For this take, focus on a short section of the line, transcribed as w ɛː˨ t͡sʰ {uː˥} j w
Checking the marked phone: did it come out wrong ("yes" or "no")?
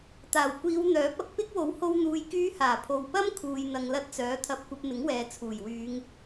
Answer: yes